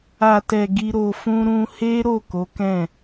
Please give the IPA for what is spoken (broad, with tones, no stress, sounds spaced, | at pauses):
a˨ t ɛ˨ ɡ i˧ ɾ o˧ f ũ˦ ɾ ũ˧ h e˦ ɾ o˦˨ k o˨˦ k ɛ̃˦˨